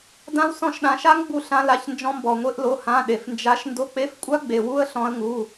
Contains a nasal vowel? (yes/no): yes